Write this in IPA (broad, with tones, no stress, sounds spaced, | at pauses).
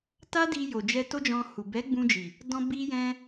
t a˦ d i˧ j o˨ d͡ʒ ɛ˧ t o˦ d͡ʒ ɔ̃˧ h u˨ b ɛ˨˦ ɡ͡b ũ˧ d͡ʒ i˨ | d ɔ̃˧ b i˧ j ɛ̃˧